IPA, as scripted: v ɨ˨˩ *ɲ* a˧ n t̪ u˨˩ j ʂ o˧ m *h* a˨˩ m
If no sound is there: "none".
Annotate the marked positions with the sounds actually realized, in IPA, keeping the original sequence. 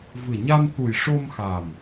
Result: ɲ, x

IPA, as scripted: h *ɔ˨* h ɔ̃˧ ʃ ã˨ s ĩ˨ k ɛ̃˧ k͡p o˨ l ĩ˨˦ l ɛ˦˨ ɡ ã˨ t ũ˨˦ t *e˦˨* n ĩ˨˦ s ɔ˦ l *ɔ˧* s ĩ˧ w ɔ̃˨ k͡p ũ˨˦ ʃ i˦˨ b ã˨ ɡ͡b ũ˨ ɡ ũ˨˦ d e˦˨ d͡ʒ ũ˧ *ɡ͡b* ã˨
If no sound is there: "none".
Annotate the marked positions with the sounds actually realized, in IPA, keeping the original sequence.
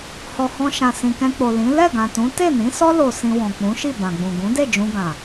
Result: ɔ˨, e˦˨, o˧, ɡ

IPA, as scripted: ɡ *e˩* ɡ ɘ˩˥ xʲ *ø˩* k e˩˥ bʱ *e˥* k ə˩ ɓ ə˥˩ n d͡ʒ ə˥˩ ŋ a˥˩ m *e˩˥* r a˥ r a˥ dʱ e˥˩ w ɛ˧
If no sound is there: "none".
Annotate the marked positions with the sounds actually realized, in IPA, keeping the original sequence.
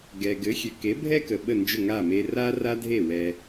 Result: ɛ˩, ø˩, ɛ˥, e˧

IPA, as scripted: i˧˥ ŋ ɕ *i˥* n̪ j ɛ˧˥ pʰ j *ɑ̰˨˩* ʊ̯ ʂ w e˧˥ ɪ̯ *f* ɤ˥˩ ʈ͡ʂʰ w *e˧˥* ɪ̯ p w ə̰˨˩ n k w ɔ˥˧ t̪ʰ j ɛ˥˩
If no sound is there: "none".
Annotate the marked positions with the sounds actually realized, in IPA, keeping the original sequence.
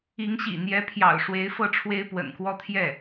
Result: ḭ˨˩, ɑ̰˨˩, f, e˥

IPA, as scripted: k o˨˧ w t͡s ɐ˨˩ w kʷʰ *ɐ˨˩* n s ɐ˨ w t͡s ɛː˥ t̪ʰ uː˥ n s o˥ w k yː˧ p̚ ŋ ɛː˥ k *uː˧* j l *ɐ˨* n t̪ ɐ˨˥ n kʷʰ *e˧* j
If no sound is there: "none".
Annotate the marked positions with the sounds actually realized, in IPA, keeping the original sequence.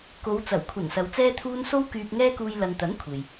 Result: ɐ˨˩, uː˧, ɐ˨, e˨

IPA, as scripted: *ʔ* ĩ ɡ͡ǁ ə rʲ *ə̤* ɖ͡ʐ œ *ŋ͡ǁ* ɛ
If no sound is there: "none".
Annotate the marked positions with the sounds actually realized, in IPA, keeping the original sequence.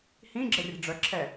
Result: h, ə̤, ǁʰ

